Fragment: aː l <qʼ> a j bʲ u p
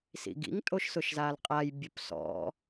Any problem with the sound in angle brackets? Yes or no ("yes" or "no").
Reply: no